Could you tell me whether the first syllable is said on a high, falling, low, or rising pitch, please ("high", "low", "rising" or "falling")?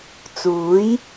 rising